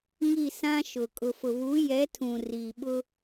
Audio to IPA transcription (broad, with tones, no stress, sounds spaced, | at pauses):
ŋ i˦˨ s ã˦ ʃ ʊ˨ kʼ ʊ˨ f ʊ˨ β u˨˦ j ɛ˨˦ tʰ ũ˨ r i˨ ɓ ʊ˦